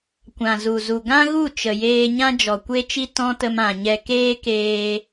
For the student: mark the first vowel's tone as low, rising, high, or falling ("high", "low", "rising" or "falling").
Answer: low